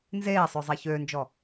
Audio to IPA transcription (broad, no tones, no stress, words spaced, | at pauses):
nzeːsˤø zˤeçøːnd͡ʒɔ